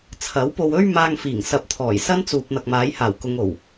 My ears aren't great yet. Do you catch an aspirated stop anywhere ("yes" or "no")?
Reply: yes